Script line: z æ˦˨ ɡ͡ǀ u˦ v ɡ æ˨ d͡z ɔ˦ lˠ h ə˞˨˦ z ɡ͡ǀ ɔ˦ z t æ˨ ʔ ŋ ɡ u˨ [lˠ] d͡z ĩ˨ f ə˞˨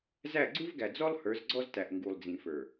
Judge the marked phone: correct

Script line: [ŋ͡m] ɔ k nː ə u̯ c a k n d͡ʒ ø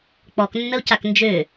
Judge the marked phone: incorrect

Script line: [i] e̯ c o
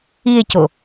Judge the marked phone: correct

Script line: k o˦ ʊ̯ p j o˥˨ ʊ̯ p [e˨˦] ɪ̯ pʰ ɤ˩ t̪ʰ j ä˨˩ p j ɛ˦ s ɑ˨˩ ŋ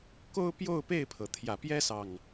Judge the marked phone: incorrect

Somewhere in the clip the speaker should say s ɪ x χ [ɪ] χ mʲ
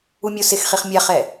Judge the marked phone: incorrect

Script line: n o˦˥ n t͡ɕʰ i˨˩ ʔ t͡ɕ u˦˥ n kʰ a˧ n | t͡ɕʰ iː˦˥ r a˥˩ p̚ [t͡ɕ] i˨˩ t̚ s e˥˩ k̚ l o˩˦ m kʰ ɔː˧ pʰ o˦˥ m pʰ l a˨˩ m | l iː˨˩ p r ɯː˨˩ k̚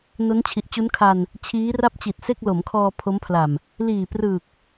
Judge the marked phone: correct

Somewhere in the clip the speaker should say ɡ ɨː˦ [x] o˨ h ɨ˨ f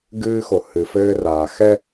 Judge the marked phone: correct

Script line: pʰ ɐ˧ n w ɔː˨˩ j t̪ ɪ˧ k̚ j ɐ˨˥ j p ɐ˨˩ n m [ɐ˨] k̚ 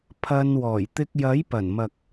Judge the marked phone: correct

